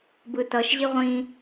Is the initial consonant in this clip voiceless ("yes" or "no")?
no